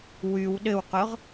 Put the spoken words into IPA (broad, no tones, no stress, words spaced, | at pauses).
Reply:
wyw ɗɘwqʊʁ